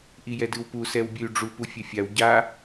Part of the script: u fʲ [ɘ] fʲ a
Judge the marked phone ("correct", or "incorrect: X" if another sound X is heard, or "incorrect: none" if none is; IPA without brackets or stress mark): correct